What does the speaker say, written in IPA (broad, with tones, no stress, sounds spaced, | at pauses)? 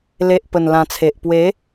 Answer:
l e˨ ʔ p ə˨˩ n l ã˨˩ t͡sʰ e˨ ʔ p w e˨˦